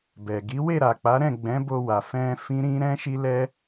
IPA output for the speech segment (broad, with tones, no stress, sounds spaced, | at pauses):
b ɛ˨ ɡ i˨˦ w e˦˨ ɾ a˨ k͡p a˨˦ ɾ ɛ̃˦˨ ɡ͡b ɛ̃˨˦ b o˧ w a˨ f ɛ̃˧ f ĩ˦ ɾ ĩ˦ ɾ ɛ̃˦ ʃ i˦ l ɛ˦